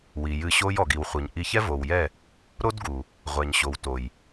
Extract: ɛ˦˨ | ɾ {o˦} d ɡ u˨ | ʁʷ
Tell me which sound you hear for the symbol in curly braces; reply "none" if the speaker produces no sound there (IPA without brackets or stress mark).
o˦